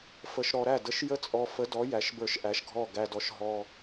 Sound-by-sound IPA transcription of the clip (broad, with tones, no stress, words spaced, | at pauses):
fə˧ʃ ɾɔ˧ɾæ˥˨ də˧˥ʃjə˥˨t͡sʼɔ˧ fə˧˥dɔ˧˥ jæ˧˥ʃbə˞˥˨ʃʔæ˧˥ʃɡʱɔ˥˨ ɡæ˧dɔ˧˥ʃ ɦɔ˧